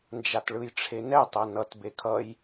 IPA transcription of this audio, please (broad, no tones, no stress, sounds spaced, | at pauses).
n d͡ʒ a t ɭ ɯ j ʈ͡ʂʰ e n ɛ tˤ ɛ n ʌ t b e kʰ ʌ j